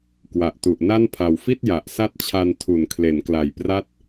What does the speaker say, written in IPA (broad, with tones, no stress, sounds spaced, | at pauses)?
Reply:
k w a˨˩ ʔ t u˨˩ ʔ n a˥˩ n pʰ a˨˩ w f i˥˩ t̚ j a˨˩ ʔ s a˦˥ t̚ t͡ɕʰ a˧ n tʰ u˨˩ n kʰ l e˩˦ n k l a˨˩ j p r a˦˥ t̚